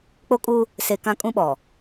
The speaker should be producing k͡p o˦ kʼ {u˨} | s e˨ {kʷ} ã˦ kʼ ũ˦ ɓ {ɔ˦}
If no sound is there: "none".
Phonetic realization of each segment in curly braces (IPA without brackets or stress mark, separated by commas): u˦, k, ɔ˨